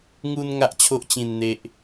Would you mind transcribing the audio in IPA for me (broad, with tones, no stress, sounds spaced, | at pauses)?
ŋ u˦ n ŋ a˦ ʔ t͡ɕʰ o˦ ʔ t͡ɕ ĩ˥˧ n n̪ e˦ ʔ